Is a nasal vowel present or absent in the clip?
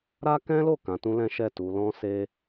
present